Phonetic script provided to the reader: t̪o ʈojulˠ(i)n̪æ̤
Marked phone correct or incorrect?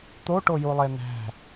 incorrect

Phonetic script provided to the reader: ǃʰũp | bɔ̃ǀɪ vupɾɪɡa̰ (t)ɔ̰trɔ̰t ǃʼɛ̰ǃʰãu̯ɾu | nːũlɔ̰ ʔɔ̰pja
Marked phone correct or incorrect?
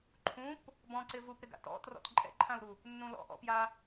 correct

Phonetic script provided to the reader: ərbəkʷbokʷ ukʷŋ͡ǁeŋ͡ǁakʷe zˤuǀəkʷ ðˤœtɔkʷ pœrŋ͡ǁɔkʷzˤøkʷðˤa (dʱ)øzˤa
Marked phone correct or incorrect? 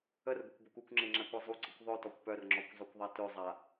incorrect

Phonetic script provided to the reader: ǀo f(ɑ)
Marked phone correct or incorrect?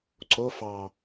correct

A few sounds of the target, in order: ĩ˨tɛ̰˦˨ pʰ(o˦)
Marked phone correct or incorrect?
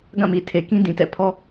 incorrect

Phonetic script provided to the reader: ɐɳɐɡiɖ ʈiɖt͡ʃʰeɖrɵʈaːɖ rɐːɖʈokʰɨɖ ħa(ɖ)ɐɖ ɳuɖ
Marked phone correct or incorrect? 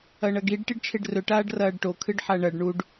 incorrect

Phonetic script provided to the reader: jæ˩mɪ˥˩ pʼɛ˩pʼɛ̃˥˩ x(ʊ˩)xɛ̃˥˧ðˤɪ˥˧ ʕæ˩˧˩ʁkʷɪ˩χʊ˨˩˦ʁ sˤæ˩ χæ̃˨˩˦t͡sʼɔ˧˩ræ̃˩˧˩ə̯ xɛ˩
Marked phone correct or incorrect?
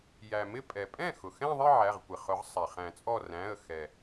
correct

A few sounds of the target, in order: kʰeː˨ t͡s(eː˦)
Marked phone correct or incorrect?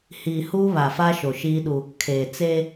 correct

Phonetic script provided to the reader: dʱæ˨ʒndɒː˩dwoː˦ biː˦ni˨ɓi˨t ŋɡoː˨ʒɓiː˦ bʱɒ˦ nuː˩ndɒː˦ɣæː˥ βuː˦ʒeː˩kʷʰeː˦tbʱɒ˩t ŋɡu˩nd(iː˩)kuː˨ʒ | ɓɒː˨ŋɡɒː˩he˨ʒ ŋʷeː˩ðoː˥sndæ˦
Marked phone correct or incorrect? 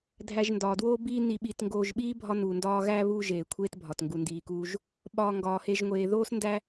correct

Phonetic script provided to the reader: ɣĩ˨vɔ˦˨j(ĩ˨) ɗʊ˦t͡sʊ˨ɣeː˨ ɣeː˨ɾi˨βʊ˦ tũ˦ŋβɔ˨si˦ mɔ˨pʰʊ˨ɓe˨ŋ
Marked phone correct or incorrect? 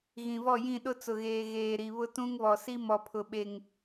incorrect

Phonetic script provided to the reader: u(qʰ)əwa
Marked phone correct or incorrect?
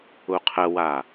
correct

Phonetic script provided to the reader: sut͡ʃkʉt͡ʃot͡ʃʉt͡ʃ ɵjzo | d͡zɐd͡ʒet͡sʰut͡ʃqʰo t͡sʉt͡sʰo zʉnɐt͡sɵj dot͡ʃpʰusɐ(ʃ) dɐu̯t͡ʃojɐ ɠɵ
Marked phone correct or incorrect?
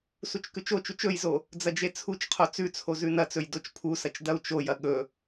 incorrect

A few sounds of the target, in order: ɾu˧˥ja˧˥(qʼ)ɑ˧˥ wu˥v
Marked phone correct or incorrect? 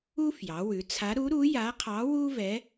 incorrect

